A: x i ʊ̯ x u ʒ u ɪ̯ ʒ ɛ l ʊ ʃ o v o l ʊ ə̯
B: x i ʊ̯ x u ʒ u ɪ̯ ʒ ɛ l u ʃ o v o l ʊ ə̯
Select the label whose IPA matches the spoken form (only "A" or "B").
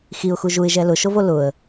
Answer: A